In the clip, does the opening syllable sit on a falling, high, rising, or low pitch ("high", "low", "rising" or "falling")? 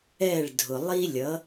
falling